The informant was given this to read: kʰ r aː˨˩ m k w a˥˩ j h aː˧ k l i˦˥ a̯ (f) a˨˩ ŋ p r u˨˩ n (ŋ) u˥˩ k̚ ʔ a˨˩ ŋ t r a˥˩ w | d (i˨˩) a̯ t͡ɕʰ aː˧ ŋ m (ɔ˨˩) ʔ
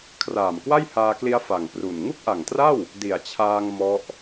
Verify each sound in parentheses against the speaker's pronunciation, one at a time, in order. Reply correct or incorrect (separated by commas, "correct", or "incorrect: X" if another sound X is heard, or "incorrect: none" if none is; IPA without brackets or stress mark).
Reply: correct, correct, correct, incorrect: ɔ˦˥